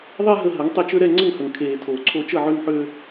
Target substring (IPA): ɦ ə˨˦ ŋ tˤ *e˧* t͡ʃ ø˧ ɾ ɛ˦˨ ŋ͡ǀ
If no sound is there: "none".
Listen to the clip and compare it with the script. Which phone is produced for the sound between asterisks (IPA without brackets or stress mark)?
e˧